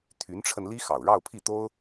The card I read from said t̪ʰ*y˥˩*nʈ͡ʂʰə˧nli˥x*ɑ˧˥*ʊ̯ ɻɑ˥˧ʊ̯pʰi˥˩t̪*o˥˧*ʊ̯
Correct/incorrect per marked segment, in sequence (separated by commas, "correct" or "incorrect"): incorrect, incorrect, incorrect